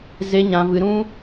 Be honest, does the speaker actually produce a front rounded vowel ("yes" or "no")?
no